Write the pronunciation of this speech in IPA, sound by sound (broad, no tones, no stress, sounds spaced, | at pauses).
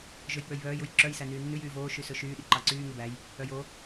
ʒ ø j k͡p ø j β œː j u j ǁ œ j s æ n yː nː ʉ j yː v oː ʃ y s ɵ ʃ yː ɗ i ǃ ɑ ǀ yː ŋ e b æ j | œ j o